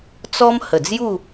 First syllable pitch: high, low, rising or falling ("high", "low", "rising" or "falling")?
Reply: high